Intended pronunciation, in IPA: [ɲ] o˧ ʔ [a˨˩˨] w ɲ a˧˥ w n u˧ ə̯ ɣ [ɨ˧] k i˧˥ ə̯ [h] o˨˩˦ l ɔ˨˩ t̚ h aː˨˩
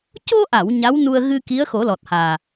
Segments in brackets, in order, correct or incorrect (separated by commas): incorrect, correct, correct, incorrect